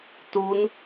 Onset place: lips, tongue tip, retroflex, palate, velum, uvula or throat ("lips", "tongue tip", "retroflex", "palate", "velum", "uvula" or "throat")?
tongue tip